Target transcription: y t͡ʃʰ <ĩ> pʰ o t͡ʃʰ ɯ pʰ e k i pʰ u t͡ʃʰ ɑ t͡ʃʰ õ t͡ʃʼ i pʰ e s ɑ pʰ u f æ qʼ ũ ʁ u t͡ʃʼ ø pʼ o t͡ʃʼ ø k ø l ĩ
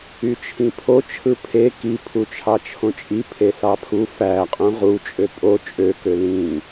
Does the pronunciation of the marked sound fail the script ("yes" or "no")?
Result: no